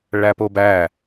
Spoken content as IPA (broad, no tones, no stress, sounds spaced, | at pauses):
ɭ æ p o b æ